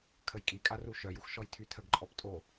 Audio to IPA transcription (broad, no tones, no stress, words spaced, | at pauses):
kʰəjkʼikʼa ruʃœjux ʃɔjtʰytʰəɡǃʼɔp tʼo